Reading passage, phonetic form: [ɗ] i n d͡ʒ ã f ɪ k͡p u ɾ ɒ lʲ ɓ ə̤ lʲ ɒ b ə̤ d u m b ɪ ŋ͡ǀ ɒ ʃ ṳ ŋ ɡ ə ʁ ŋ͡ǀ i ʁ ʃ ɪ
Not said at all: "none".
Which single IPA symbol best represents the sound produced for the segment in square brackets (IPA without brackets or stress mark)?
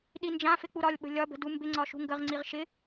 ɗ